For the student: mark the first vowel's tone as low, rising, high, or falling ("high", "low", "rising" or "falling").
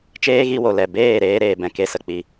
high